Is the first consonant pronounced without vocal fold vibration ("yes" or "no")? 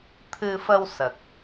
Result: yes